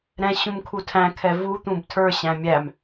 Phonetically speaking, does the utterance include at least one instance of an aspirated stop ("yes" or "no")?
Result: yes